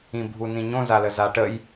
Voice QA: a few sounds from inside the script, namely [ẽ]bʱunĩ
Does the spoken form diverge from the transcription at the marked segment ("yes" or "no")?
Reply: yes